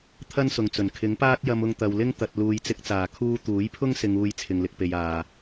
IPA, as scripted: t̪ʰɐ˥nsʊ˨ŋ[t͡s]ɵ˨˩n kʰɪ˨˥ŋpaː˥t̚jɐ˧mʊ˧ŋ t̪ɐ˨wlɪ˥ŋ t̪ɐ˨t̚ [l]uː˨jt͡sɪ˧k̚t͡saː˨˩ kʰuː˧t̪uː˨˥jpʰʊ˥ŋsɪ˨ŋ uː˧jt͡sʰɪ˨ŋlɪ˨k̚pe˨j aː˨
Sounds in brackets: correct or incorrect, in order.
correct, correct

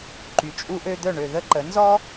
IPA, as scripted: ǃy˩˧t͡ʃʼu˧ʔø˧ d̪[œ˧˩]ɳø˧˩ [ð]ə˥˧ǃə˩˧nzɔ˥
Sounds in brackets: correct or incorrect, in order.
correct, correct

